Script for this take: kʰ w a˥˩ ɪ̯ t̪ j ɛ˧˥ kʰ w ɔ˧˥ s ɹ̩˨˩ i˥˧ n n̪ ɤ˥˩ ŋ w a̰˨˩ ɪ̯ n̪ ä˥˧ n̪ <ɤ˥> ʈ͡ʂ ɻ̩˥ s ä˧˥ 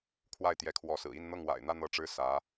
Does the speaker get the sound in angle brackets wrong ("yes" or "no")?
yes